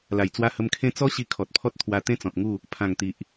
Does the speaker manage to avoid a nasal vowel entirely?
no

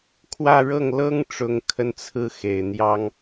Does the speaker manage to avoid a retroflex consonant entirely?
no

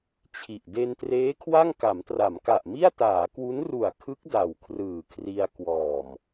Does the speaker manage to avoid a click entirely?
yes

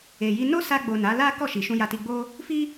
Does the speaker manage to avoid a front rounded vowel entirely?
yes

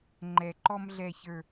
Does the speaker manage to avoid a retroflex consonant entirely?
yes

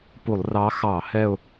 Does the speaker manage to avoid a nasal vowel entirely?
yes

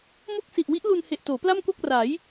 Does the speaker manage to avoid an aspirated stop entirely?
yes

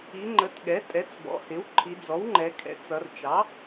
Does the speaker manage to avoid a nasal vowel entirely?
yes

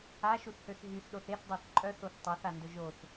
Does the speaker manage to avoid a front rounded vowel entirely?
no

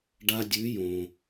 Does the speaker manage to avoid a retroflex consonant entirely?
no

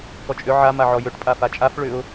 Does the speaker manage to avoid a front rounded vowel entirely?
no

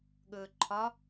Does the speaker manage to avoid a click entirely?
no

